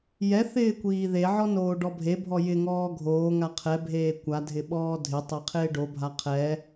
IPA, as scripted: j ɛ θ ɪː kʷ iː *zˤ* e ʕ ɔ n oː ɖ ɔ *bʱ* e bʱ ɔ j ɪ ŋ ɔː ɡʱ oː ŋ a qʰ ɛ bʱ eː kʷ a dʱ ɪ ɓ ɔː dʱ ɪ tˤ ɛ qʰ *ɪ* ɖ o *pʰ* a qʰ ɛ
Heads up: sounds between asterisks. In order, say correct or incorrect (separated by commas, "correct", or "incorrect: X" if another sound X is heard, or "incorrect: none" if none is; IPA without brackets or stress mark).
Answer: incorrect: ð, correct, incorrect: ɪː, incorrect: bʱ